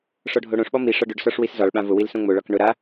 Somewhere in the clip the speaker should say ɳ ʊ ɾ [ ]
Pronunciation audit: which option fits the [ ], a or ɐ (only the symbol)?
a